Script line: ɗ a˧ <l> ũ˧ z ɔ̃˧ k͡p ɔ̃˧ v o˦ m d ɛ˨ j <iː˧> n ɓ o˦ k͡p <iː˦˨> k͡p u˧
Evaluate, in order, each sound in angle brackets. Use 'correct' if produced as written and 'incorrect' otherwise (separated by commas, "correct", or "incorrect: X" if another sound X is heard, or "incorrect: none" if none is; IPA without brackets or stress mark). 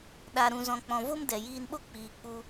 incorrect: ɾ, correct, incorrect: iː˨